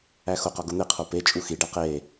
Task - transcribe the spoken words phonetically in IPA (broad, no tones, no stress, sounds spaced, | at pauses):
æ x o q ɒ ɡ o n̪ e qʰ o p e t͡ʃʼ u x i ɖ æ q e